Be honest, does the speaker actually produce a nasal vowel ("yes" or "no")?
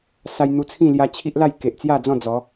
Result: yes